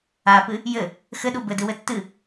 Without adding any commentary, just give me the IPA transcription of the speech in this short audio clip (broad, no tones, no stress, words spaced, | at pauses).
apɨ | jɘ | xɘɗu bɘdɨwɘ tːɨ